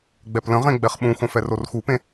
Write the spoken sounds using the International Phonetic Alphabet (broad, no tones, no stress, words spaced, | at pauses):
ɡ͡bɛplə̃ʁẽ ɡ͡bɛχɓũxõf ɛrorxupẽ